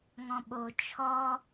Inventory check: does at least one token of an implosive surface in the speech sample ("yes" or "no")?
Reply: yes